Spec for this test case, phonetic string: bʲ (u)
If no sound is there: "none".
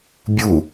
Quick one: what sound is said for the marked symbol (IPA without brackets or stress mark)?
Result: u